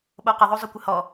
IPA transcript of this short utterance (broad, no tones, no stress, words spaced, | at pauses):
ɓoqɪðˤo zˤʊkʷɪhɔ